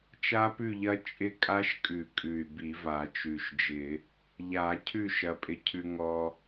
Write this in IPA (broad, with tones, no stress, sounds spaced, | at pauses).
t͡ʃ a˦˥ p ʉ˥˨ ʎ ɐ˦˥ t͡ʃʼ ɪ˦˥ kʼ a˦˥ ʃ kʼ ʉ˨˩˦ kʼ ʉ˨˩ y̯ b i˨˩˦ v a˨˩˦ t͡ʃ ʉ˨˩ ʃ d͡ʒ ɪ˨˩˦ | ʎ a˨˩˦ cʰ ʉ˥˨ ʃ ɐ˧ pʼ ɪ˧ cʰ ʉ˧ ŋ ɔ˧